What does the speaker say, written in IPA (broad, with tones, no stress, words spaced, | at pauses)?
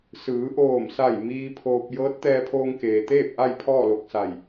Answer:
sɯː˩˧ʔoː˧˩msa˧˩j miː˧ pʰoː˧p̚ jɤː˧˥t̚t̪ɛː˧pʰoː˧ŋ keː˩t̪eː˥˨p̚ ʔa˥˨jpʰɔː˥˨lo˧˩k̚sa˧˩j